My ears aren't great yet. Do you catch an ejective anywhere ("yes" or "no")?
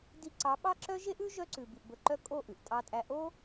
yes